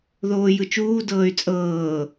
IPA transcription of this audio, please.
ð oː j ɯ t͡ʃ uː d ɤː y̯ t͡sʼ ɤː

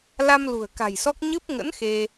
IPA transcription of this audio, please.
l a˧ m l ṳ˨˩ ə̯ k a̤˨˩ j s ɔ˦˥ k̚ ɲ ɨ˦˥ p̚ ŋ ə̰˧˥ n x e˧

